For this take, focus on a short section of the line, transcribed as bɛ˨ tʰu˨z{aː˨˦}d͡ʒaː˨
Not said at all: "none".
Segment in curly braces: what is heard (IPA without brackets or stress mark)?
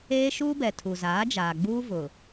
aː˨˦